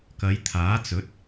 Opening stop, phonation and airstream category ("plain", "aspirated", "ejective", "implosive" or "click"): plain